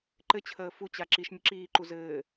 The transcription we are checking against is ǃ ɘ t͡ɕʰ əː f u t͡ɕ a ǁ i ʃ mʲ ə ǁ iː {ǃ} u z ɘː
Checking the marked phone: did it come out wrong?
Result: no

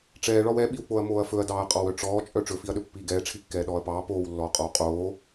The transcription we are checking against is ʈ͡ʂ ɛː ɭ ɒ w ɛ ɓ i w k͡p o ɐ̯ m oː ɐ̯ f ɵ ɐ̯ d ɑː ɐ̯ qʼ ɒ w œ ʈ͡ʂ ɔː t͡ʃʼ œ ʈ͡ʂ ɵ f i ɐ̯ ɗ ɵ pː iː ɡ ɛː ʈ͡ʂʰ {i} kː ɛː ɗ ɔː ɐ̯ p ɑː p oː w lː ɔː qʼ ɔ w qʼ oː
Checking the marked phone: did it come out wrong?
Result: no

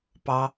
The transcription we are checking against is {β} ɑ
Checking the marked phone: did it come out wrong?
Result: yes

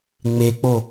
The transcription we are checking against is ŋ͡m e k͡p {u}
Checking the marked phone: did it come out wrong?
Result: yes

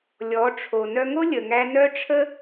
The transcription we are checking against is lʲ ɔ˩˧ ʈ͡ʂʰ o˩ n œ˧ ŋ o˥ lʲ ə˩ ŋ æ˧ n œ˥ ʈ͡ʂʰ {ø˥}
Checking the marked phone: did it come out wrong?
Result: yes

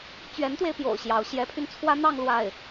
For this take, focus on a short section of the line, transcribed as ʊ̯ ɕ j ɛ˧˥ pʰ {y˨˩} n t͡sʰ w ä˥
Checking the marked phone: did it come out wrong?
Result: yes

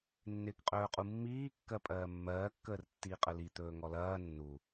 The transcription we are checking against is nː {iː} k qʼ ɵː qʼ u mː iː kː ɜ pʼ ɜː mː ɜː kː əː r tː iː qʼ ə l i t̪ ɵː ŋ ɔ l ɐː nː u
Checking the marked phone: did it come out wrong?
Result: yes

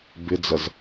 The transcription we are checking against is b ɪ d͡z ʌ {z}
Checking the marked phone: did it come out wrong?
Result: no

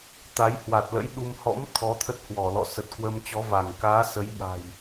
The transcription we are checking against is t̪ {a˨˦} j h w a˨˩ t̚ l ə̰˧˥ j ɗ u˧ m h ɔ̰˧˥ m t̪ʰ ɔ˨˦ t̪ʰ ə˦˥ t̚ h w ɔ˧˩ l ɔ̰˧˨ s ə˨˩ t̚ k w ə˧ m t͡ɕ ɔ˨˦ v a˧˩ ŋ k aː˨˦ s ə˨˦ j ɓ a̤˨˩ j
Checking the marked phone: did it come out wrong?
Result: no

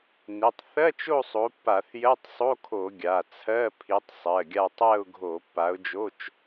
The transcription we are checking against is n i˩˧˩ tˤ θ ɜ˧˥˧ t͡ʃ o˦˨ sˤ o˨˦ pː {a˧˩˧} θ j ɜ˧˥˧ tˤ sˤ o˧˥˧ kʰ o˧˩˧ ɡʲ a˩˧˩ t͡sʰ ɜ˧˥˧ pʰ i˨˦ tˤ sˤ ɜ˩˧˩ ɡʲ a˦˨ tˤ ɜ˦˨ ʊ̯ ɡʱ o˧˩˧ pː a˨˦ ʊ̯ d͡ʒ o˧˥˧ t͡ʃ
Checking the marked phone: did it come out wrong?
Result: no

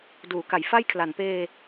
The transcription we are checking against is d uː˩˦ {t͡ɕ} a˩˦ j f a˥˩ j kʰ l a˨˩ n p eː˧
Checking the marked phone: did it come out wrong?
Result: yes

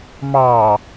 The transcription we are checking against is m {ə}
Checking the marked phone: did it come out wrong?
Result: yes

